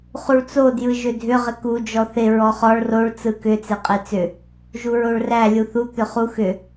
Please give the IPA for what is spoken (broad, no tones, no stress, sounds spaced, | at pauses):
χ u ɭ t͡s o d j ɯ ʒ ʏ dʱ ʏ ʁ ɪ k u d͡ʒ ɔ θ ɪ ɹ ɔ χ ɔ ɭ r o ɭ t͡s ɯ k ʏ t͡s e qʼ e t͡s ʏ | ʒ u ɹ o ɭ r æ lʲ u θ u t̪ ʏ χ u x ʏ